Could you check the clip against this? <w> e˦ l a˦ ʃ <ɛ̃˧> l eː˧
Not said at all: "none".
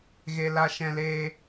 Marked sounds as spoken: ɣ, ɛ̃˧

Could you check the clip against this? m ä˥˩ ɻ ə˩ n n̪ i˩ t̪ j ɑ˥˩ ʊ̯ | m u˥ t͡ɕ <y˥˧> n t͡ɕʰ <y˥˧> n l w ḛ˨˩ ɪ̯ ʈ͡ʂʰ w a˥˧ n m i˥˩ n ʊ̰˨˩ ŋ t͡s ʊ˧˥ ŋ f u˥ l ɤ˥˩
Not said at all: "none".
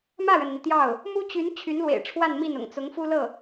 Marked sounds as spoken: y˧˥, y˧˥

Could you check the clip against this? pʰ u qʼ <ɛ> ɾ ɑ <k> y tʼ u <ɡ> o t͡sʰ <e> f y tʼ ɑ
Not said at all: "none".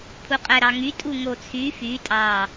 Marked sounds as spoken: ɛ, ŋ, ŋ, y

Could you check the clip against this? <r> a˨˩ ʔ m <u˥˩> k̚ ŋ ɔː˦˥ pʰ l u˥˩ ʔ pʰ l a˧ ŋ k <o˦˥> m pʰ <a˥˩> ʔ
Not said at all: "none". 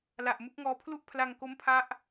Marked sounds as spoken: l, u˦˥, o˦˥, a˦˥

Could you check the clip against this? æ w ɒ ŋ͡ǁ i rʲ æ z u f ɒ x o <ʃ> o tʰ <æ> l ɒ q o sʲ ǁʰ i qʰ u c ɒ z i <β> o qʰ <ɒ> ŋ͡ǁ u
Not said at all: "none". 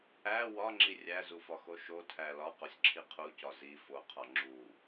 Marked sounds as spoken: ʃ, æ, f, ɒ

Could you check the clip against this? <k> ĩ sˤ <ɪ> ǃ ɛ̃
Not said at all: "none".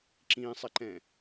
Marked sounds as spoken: ǁ, ɪ

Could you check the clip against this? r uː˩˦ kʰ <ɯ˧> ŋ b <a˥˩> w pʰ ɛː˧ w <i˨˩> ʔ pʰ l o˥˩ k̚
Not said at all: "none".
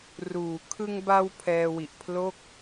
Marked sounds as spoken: ɯ˧, a˧, i˨˩

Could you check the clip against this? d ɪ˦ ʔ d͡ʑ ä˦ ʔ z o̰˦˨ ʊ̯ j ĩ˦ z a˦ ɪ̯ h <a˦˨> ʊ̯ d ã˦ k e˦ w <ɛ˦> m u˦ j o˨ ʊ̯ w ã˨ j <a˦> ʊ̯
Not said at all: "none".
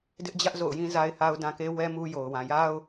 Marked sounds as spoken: a˦, ɛ˦, a˦

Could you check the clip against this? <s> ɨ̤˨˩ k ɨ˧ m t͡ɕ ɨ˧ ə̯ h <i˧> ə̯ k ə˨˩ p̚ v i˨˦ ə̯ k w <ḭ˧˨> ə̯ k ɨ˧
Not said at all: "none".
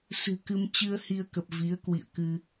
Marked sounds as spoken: s, i˧, ḭ˧˨

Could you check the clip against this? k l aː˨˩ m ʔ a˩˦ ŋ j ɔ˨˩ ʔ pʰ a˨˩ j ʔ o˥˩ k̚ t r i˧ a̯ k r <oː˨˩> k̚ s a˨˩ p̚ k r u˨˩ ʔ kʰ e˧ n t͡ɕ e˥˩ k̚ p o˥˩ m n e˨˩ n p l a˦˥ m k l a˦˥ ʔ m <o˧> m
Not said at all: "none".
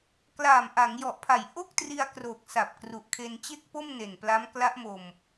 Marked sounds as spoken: oː˨˩, o˧

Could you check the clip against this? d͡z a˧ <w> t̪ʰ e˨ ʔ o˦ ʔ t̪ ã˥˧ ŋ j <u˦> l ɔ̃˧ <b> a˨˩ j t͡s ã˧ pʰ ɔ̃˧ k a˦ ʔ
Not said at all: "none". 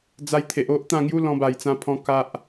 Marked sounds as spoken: j, u˦, b

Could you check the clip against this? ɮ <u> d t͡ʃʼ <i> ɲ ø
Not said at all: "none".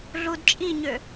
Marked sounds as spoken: u, i

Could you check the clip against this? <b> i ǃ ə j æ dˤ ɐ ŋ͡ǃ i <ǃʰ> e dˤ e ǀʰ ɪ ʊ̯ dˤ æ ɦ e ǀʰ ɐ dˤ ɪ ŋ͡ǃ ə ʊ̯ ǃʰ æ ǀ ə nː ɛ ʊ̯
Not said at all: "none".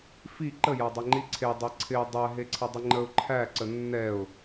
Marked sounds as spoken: f, ǀʰ

